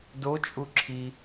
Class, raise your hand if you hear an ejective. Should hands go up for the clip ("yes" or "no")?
yes